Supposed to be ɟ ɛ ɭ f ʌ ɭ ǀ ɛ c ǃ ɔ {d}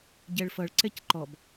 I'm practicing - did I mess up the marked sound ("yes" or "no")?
yes